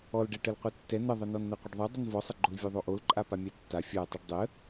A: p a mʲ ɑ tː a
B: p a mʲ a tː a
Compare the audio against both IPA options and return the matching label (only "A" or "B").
B